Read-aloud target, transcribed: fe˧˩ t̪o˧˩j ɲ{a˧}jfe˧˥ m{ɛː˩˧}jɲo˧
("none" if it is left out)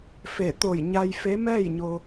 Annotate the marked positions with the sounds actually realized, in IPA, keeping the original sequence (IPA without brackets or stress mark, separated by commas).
a˧, ɛː˥˨